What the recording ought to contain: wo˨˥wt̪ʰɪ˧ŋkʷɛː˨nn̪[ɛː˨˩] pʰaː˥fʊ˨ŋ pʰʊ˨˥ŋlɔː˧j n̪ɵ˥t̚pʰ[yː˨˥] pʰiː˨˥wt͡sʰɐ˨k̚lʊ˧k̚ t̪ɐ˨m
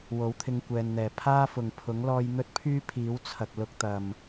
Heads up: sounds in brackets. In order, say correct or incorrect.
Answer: correct, incorrect: yː˥

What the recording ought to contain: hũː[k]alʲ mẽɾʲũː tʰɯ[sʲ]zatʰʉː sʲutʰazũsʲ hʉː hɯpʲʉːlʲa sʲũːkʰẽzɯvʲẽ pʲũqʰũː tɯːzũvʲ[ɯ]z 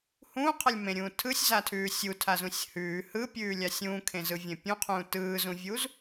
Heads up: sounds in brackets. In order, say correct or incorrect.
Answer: incorrect: qʰ, correct, incorrect: u

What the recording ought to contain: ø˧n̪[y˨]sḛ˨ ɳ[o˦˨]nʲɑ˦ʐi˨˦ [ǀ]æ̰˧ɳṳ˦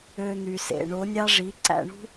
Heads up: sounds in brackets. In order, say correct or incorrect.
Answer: correct, incorrect: o˨˦, correct

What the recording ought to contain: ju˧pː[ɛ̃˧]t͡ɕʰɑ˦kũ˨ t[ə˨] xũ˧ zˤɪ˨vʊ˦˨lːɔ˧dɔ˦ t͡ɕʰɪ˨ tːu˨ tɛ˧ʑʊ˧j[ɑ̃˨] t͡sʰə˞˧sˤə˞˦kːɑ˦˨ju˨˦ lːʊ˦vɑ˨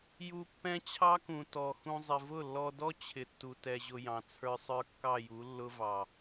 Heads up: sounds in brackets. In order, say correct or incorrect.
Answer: incorrect: ɛ̃˦, incorrect: ɔ˨, correct

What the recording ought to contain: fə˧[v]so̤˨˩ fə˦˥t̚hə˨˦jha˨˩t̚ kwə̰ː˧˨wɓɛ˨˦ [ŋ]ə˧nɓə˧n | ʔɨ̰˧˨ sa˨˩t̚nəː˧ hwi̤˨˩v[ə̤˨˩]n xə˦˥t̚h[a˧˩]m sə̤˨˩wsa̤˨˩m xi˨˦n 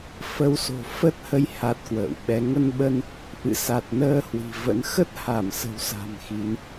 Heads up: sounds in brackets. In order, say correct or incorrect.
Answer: incorrect: w, correct, incorrect: ə̰˧˥, correct

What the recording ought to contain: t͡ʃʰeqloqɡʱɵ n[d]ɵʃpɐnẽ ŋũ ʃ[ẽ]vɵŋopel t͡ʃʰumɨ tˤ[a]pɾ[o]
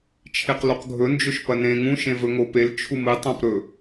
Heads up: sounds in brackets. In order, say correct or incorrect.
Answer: incorrect: d͡ʒ, correct, incorrect: ã, incorrect: ɵ

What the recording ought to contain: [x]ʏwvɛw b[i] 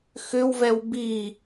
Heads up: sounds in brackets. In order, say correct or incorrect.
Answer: correct, correct

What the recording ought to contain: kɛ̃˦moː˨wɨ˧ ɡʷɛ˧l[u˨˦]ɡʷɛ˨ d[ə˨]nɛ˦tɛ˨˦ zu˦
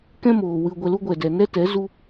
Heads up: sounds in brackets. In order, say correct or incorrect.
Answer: incorrect: u˦, incorrect: ɛ˨

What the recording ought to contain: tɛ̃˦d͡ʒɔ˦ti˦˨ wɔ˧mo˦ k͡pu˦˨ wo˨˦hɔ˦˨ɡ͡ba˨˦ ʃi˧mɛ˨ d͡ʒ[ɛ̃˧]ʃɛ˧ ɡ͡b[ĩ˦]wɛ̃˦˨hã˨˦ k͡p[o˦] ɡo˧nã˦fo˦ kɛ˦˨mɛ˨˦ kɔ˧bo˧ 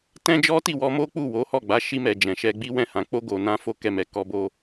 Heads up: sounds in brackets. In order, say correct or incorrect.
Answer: incorrect: ɛ̃˨, incorrect: i˦, correct

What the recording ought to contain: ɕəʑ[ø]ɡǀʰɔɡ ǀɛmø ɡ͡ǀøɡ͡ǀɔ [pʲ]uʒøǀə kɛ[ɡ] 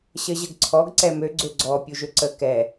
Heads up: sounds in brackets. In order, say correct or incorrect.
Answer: incorrect: ə, correct, incorrect: none

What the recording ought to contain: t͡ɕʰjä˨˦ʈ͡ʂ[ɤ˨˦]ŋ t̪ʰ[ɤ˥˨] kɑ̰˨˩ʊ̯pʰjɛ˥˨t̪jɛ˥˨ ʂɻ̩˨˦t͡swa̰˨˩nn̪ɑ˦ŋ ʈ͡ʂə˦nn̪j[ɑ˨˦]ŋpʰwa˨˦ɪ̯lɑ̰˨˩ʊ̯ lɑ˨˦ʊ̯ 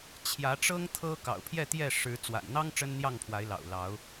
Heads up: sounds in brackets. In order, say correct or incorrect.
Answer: incorrect: ɤ˦, incorrect: ɤ˦, incorrect: ɑ˥˨

